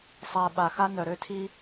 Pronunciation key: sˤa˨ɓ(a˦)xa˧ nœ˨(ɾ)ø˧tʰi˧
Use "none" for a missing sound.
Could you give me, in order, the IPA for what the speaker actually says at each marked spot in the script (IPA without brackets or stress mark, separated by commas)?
a˨, ɾ